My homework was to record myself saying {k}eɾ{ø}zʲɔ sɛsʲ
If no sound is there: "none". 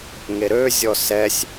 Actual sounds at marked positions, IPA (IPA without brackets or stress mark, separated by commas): ŋ, ø